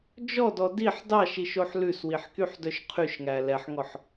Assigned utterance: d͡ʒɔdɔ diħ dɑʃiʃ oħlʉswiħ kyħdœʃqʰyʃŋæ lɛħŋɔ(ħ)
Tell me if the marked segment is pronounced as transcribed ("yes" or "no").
yes